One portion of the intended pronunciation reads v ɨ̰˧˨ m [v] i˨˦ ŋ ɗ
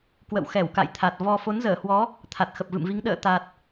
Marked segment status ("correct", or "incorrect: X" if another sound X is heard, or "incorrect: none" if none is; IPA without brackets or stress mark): correct